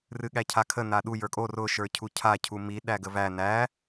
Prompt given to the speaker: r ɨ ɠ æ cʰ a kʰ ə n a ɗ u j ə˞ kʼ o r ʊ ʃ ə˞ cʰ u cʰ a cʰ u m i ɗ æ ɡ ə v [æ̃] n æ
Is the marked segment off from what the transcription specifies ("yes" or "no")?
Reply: yes